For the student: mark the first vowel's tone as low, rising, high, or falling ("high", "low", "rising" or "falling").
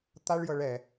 high